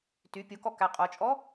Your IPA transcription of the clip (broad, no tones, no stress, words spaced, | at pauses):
ty pʲokɔ kæqʼot͡ʃʼɔ